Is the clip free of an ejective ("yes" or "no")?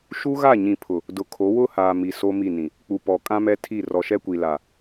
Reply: no